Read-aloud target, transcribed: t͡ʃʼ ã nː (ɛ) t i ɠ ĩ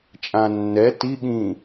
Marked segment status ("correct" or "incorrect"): correct